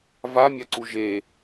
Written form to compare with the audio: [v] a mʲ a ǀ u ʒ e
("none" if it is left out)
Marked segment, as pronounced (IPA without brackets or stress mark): v